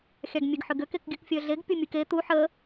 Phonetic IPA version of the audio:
xʲ a ɡ mʲ e ɡ ħ ʏ ɡ ʏ k e k ɡʲ ɨ k fʲ œ ɮ e ɡ pʲ u mʲ ɨ k e t̪ u ħ ə

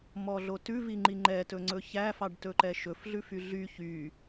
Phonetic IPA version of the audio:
m ɔ ɮ o t ʉ v i ŋ͡ǃ i ŋ͡ǃ ɛ t ɵ ŋ͡ǀ ɵ ç æ f ɑ ɖ t ɵ ǃ ɛ ʃ ɵ f ɮ ʉ f y ɮ y ç y

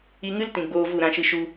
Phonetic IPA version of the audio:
i˧ ŋ ɨ˦ l t ĩ˨ ɡ͡b oː˧ v u˦˨ ɾ ã˧ ʃ ɨ˧ ʃ u˧

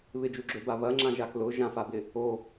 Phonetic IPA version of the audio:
β ɪ d͡ʒ u ɡ͡ǁ ø b a β ɐ ŋ͡ǁ ã ʒ a k l ʊ ʒ ã f a b ɪ | o

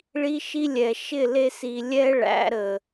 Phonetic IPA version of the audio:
ɭ i˦ ʃ i˦ lʲ ɛ˨ ʃ ɪ˦˨ l e˧ s i˨ lʲ ɛ˦ ɭ æ̰˨˦ ɾ ə˨

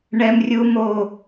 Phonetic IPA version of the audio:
ɳ ɛ˥ m rʲ u˥ m o˥˧

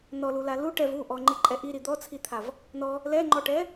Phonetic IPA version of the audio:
n ɔ l u l a l u ʈ ɛ v u ʔ ɔ ŋ͡ǃ i ǃʼ ɛ ʔ i ɾ i d̪ ɔ t͡sʰ i t̪ʰ a v | n ɔ | l ɛ ŋ͡ǃ ɔ ʈ ɛ

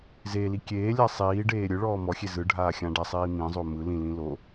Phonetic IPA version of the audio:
z e l i kʲ eː lʲ a sˤ iː ɖ eː ɾʲ ɯ ɭ ɔː m ɔ xʲ e z ɯ ɖʱ aː xʲ ã ɖ a sˤ iː m ĩ zˤ o m ɯ l ĩ l ĩ l o

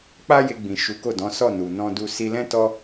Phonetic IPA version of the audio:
k͡p a˦ j e˧ ɡ͡b ĩ˨ ʃ u˨˦ k o˦˨ d ɔ̃˨˦ s ɔ˦˨ n u˨ n ɔ̃˧ d u˧ s i˧ l ɛ̃˦ t ɔ˦

